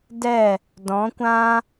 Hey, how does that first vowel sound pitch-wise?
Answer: falling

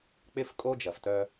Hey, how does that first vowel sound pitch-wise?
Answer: high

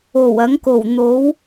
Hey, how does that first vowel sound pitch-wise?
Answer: low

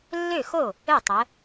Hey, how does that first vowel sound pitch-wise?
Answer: falling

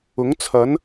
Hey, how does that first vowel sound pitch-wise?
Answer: rising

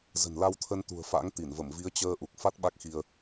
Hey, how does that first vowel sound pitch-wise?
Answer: low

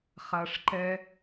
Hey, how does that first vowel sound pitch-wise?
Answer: low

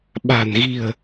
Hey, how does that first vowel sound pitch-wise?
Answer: low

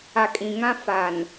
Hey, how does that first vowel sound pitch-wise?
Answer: low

